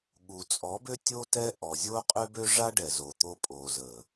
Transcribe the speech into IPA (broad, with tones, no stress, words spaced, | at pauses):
ɠu˨t͡sʼɔ˨˦bø˦ tʲo˦tɛ˦ ʔɔ˨ zʲo˦qʼø˦bø˦ ʐa˦ɖɛ˨zo˨t̪o˧ pʼo˨zə˨